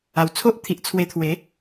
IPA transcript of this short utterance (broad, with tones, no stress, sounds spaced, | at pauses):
a˨˩ w t͡sʰ o˦ ʔ t̪ʰ i˨ ʔ t͡sʰ w e˧ t̪ʰ w e˨˦